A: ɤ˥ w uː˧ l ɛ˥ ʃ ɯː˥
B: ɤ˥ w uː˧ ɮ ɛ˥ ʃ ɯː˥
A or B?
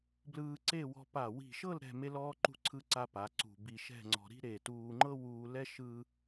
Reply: A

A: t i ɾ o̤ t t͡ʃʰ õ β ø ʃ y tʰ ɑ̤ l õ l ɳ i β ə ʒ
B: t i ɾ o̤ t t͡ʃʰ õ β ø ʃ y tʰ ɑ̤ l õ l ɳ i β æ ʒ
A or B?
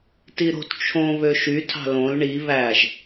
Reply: B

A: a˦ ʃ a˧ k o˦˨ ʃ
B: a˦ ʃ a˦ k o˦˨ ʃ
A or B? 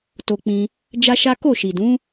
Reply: B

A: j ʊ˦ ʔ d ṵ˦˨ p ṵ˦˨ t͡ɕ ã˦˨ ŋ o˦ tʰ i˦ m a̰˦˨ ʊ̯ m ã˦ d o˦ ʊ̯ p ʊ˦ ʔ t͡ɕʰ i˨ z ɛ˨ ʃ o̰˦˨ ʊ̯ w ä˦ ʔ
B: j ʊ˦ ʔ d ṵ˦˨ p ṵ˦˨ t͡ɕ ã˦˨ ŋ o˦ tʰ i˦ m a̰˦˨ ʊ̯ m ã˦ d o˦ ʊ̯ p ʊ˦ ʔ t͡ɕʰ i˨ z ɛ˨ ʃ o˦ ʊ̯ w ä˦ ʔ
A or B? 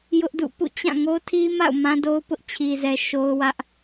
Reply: B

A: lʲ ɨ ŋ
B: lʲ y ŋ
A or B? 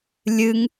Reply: A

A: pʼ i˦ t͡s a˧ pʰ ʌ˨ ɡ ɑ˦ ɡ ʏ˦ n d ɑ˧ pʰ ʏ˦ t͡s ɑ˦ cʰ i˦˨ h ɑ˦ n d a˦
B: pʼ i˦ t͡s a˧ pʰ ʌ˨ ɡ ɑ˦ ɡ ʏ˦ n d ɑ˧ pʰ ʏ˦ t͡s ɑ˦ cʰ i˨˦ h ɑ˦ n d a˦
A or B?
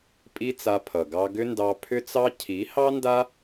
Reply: B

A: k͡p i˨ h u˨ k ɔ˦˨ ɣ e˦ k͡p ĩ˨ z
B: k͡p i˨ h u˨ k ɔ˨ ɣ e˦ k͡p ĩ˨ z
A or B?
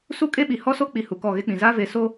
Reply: A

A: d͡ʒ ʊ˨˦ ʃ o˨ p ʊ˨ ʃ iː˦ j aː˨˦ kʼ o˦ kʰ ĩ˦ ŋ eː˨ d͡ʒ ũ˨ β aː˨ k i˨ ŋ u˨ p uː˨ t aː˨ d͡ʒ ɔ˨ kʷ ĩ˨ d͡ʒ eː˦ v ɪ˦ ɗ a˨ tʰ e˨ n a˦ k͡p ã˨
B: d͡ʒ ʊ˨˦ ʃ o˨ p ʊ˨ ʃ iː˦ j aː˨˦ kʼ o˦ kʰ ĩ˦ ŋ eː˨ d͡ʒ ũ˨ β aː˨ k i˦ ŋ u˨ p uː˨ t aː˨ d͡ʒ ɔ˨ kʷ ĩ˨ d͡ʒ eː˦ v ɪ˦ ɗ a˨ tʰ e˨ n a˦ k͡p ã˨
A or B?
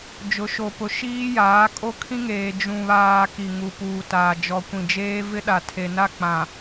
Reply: A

